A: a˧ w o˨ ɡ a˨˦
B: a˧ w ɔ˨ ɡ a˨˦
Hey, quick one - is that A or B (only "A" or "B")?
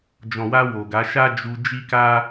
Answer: A